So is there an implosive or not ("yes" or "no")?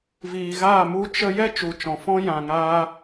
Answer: no